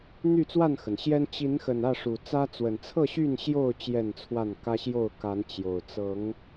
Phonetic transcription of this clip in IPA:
n̪ y˥˨ t͡s w a˥˨ n x ə˩ n ɕ j ɛ˦ n t͡ɕ i˨˦ n x ə˨˩ n ä˥˨ ʂ u˨˩ t͡s ä˦ t͡s w ə˨˩ n t͡sʰ ɤ˥˨ ɕ y˥˨ n ɕ j o˥˨ ʊ̯ t͡ɕ j ɛ˥˨ n t͡sʰ w a˥˨ n k ä˦ ɕ j o˥˨ ʊ̯ k a˨˦ n t͡ɕ j o˨˩ ʊ̯ t͡s ɤ˨˦ ŋ

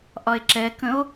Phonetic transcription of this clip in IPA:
ʔ ɒ e̯ ǁ ɛ k ə̃ o̯

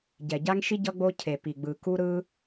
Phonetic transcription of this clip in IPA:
ɟ ɛ˩ ɟ a˥ ŋ ʃ i˥ ɟ ʌ˥ ɡ͡b o˥ cʰ e˩ p i˩ ɡ͡b ɯ˩ k u˥ ɾ ɯ˥

